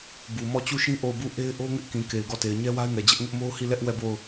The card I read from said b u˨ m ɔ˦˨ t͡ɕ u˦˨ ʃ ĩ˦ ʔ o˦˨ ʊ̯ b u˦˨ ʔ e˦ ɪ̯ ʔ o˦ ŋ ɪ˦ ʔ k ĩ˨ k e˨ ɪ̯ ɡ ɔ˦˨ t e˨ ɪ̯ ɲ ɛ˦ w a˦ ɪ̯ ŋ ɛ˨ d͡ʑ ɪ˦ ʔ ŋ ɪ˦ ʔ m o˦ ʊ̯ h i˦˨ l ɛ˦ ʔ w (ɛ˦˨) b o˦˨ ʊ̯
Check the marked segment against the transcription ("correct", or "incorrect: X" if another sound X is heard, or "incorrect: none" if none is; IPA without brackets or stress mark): correct